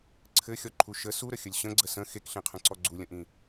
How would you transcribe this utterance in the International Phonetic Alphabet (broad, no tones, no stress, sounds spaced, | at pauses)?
ǀʰ ɘ xʲ ɔ ǃʰ u ʃ ə s u ɾ ə xʲ ə lʲ ɕ ə̃ ɡ͡ǀ ə s ə̃ x e k ɬ ẽ qʰ ə̃ ǀ ɔ ɡ͡ǀ u lʲ ə̃ ʔ ĩ